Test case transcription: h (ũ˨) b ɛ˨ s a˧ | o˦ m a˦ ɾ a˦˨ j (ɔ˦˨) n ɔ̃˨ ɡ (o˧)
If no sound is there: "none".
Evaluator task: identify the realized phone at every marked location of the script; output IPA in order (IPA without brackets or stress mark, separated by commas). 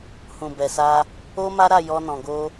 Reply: ũ˨, ɔ˧, o˧